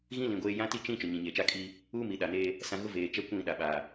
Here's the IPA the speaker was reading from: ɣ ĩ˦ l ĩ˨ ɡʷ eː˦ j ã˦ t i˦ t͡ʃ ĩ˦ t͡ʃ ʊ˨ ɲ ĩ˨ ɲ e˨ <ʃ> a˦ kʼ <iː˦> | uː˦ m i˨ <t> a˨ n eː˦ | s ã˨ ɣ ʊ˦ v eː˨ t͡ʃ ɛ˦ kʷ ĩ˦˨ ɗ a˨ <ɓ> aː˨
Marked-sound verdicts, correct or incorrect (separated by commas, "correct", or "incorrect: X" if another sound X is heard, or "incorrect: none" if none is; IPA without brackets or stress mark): incorrect: t͡ʃ, correct, incorrect: ɗ, correct